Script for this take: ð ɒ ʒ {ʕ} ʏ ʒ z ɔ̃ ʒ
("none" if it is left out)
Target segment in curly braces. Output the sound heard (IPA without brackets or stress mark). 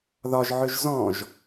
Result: ʕ